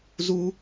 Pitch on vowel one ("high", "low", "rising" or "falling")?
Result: high